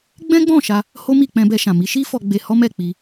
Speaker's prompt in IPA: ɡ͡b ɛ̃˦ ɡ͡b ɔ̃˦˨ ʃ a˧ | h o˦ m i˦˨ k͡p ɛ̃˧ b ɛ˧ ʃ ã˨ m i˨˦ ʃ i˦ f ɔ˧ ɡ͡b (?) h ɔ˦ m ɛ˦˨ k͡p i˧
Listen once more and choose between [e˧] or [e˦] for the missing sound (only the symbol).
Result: e˧